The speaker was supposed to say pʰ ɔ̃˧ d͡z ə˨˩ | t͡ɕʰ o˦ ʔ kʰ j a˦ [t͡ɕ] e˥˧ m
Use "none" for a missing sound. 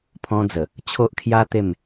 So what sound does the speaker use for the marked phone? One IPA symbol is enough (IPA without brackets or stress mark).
t̪